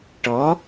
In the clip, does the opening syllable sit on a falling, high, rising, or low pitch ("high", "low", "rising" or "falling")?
rising